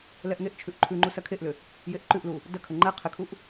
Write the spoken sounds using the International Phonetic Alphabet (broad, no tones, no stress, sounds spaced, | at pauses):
l ɛ ʔ ŋ e ʔ t͡ʃʰ ʉ ʔ ǃʰ ʉ ŋ͡ǃ u s ɐ kʰ e ʔ l ʏ | j e ʔ ǃ ʉ ʔ l u | d ɐ kʰ ə ŋ͡ǃ ɛ qʰ ɪ kʰ u ʔ